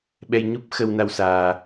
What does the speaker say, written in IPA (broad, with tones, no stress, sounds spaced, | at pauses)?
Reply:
ɓ ɛ˧ j ɲ u˦˥ p̚ x ə˧ w n a˧ w s aː˧